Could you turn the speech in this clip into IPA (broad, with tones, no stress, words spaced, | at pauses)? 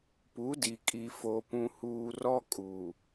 pu˨˦di˨ kʼi˨fo˨ pũ˦huː˦ rɔ˦ kʼu˨